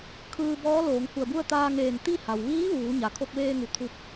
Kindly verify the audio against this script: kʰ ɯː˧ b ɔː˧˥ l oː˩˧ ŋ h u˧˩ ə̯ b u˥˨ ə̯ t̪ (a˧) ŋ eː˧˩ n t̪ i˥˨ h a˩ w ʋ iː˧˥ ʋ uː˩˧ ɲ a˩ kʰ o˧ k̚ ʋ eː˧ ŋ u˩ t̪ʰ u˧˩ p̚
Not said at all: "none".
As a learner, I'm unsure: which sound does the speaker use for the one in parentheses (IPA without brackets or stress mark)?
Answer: aː˧